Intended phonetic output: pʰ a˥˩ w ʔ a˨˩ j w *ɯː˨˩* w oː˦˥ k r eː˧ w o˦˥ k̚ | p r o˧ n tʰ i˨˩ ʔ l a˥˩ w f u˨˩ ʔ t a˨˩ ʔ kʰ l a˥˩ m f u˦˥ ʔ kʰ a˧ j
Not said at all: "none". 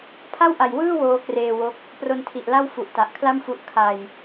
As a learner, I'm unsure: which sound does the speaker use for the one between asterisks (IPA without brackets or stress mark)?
ɯː˥˩